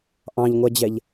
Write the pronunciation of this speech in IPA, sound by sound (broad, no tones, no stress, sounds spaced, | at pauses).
ʔ ɑ̃ ʎ ŋʷ ɛ d͡ʑ ɛ ʎ